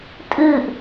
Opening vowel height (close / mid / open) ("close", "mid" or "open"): close